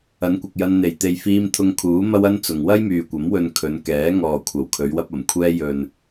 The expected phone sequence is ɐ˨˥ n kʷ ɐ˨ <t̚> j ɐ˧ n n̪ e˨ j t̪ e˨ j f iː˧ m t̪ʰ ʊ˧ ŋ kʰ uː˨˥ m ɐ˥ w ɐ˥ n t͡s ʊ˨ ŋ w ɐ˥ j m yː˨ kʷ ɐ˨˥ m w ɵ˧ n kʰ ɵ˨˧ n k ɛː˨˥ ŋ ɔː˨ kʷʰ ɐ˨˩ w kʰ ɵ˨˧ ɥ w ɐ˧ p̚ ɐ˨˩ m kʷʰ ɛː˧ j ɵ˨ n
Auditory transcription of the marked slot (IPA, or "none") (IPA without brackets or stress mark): k̚